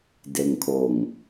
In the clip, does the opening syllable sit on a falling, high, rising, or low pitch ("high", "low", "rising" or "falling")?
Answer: low